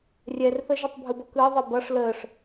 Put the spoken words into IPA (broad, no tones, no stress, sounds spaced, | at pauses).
rʲ ɛ r θ ə ʒ ʌ tˤ bʱ ɯ b ʌ k ɯː ðˤ e b ʌ ʂ l əː ʂ